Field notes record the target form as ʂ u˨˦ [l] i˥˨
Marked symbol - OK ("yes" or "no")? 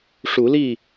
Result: yes